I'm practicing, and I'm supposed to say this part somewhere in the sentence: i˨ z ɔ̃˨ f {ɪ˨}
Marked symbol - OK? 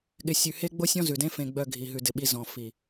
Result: no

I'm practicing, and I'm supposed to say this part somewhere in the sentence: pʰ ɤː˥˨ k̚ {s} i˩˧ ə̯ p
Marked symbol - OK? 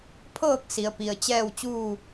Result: yes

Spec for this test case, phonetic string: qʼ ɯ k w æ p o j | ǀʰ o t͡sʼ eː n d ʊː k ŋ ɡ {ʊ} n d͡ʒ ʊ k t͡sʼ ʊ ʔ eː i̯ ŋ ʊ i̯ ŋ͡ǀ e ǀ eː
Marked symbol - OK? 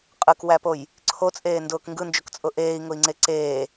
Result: no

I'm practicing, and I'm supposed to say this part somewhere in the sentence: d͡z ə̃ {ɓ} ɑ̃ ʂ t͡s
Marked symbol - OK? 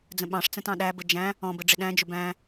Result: yes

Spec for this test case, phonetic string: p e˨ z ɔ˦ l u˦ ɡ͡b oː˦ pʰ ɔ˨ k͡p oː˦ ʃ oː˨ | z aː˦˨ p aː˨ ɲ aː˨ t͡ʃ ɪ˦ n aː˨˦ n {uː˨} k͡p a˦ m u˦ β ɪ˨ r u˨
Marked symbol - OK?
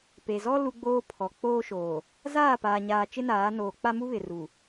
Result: no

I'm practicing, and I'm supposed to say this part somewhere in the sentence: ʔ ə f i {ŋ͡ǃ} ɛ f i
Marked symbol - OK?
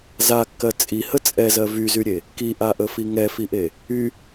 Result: no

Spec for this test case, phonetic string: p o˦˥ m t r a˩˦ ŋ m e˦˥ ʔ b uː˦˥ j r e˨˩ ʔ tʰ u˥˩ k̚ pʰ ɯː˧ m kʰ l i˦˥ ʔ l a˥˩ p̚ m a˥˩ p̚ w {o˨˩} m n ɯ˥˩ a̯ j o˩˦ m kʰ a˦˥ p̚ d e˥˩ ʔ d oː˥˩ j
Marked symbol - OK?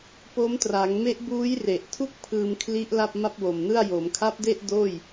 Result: yes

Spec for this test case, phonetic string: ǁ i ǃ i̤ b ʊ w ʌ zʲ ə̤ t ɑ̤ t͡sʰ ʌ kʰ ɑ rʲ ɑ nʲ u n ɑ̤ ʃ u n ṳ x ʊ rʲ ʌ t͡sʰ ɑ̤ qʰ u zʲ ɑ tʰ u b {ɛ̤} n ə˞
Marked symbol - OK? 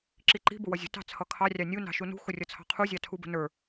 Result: no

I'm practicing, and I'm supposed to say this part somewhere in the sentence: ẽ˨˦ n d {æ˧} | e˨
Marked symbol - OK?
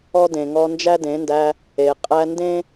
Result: yes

